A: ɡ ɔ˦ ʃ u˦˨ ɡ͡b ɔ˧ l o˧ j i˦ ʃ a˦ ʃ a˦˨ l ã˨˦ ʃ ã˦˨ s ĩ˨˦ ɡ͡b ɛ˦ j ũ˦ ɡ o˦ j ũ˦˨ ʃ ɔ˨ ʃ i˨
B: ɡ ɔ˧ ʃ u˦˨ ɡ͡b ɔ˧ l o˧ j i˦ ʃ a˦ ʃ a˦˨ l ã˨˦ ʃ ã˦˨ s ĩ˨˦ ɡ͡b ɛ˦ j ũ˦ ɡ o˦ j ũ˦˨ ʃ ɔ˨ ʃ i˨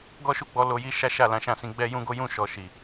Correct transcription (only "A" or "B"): A